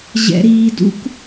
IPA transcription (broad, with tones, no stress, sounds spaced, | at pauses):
ʑ ɛ̰˧ ɾ iː˧ d ṵ˦ k